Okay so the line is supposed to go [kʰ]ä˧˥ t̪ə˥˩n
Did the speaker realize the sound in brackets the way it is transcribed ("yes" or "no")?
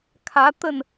yes